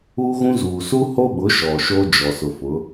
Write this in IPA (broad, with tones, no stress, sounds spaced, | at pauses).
uː˦ ɣ ũ˦ z uː˨ s u˦ h o˦ ɓ ʊ˨˦ ʃ ɔ˨ ʃ o˦ d͡ʒ ɔ˨ s ʊ˨ f ʊ˨˦